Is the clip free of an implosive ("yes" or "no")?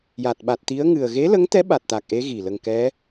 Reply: no